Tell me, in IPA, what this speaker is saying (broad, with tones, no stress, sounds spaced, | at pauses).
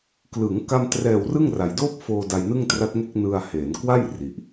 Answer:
k l ɯ˩˦ ŋ k a˧ m t r ɛː˨˩ w r ɯ˥˩ ŋ r a˨˩ j d oː˥˩ p̚ f oː˧ d a˧ j n ɯ˥˩ ŋ t r a˦˥ t̚ ŋ e˥˩ k̚ n ɯ˧ a̯ h eː˩˦ n k w a˥˩ j r i˨˩ ʔ